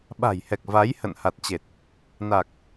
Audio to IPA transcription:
ɓa̤˨˩jhɛ˨˩k̚ va˨˦j hə̰˧˨nha˨˩t̚t͡ɕe˨˩t̚ | na˨˩k̚

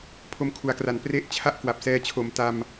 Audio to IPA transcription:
pʰo˧mkʰu˩˦a̯kra˨˩n pre˦˥ʔt͡ɕʰa˥˩ʔ kwa˨˩p̚sɛː˧t͡ɕʰo˨˩m ta˧m

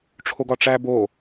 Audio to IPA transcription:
ʈ͡ʂʰoɡɒʈ͡ʂæ bo

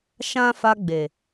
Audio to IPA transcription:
ʃã˦ fa˧ɡ͡be˨

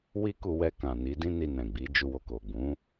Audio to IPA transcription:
wi˦ku˧wɛ˧kã˨ ni˨˦dĩ˦ ni˧nɛ̃˨ɡ͡bi˨˦ d͡ʒu˧wo˧ ko˨ɡ͡bũ˨˦

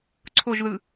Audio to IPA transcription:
ǀʰoʒðɯ

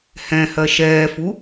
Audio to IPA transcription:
hɛ̃hɜ ʃɛːfu

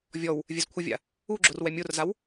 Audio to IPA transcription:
vʲɔw | vʲɛzkʷʰɪvʲa̰ | uɡ͡ǁʊr wɛmʲorzaw

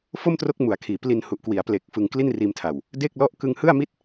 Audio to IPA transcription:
fo˥˩mtro˦˥k̚mu˩˦a̯kʰiː˩˦ pli˧nhu˨˩ʔkwi˩˦a̯ ple˨˩k̚fɯ˨˩ŋ kli˥˩nriː˧mtʰa˨˩w | de˥˩k̚lɔ˥˩ʔ kɯ˧ŋhɯ˥˩a̯mi˥˩t̚

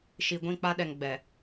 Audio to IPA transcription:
ʃi˨ ɡʷĩ˦˨k͡pa˦ɗɛ˨ŋ ɡ͡bɛ˨

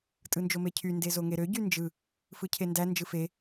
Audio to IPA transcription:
tʼɯnd͡ʒomecʰy ndezoŋeɾø ɟynd͡ʒɯ | fɯcʰendæ nd͡ʒɯfe

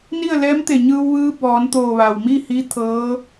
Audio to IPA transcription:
ni˥˨ə̯lɛː˧˥mt̪e˧˩ ɲɯː˧w ʋɯː˧˥bɔː˩˧nt̪oː˧˩ ʋa˩wmi˥˨hi˧˥ t̪ʰɤː˧˥

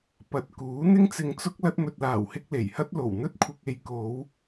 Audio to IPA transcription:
pɐ˨˥t̚kuː˨˥ n̪ɪ˥ŋt͡sɪ˧ŋt͡sʊ˥k̚ lɐ˧t̚mɵ˨t̚laː˨˩whɪ˧k̚ le˨˩jhɐ˥t̚ lo˨˩wn̪ɵ˥t̚kʷʰɪ˧k̚ e˨˧jko˨˧w

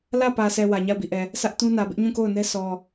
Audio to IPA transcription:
lä˦˨pä˨sʰɛ˨ wä˨ɲa˦˨ʊ̯bi˦˨ʔɛ˨ | sä˦ʔtũ˦nä˨ bɪ˦ʔɲũ˦˨ko˦˨ʊ̯nɛ˦ sʰɔ˨

